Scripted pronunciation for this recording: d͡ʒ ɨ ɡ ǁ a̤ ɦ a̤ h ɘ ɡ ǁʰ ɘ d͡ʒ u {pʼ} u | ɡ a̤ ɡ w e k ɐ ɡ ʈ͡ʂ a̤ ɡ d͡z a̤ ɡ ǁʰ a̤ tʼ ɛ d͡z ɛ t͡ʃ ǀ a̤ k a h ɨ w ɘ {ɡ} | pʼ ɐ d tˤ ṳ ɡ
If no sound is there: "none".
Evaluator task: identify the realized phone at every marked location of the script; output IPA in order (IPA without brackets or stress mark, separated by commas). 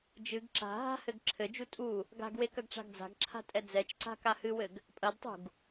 tʼ, ɡ